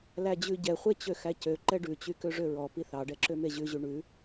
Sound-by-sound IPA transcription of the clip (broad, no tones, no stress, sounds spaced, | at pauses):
l æ d͡ʑ ʉ ɟ ɛ χʷ e t͡ɕ ø x æ c ø ǃ ɛ ɖ ʉ t͡ɕ y k ø ʐ ø ɹ ɔ p i θ ɑ ɖ ɛ ǁ ø m e ʑ ʉ ʑ y ɳ ʉ